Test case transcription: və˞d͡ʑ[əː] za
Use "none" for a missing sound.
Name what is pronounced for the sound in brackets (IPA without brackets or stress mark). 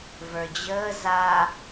əː